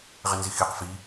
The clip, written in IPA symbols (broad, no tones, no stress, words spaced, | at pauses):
ʁɪnzixiq fi